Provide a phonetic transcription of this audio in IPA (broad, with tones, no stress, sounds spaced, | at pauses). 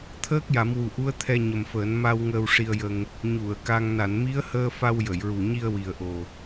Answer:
t̪ʰ əː˦˥ k̚ j a˨˩˦ m w u˨˩ ʔ u˧˥ ə̯ t̪ʰ ɛ˧ ɲ ə˨˩ m f əː˨˩˦ n m a˧ w ŋ əː˧ w ʂ i˧ ə̯ j ə˧ ŋ | ɲ u˨˩˨ ə̯ k a˧ ŋ n a˨˩˨ n m i˧˥ ə̯ h əː˧ f a˧ w j ə˨˩˨ j ɹ u˨˩ ɲ i˧ ə̯ w i˨˩ ə̯ ʔ o˨˩